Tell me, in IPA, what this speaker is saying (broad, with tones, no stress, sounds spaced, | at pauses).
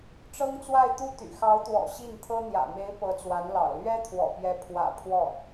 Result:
ʈ͡ʂ ɤ˥ ŋ t͡s w a˥˧ ɪ̯ t̪ u˥˩ t̪ y̰˨˩ x ɑ˧˥ ʊ̯ t̪ w ɔ̰˨˩ ɕ i˥˩ n t̪ʰ ɤ˥ n̪ j ä̰˨˩ m e˧˥ ɪ̯ p ɤ˧˥ t͡s w a˧˥ n l ɑ̰˨˩ ʊ̯ l ɥ ɛ˥ t̪ʰ w ɔ̰˨˩ p j ɛ˧˥ pʰ w ä̰˨˩ pʰ w ɔ˥˩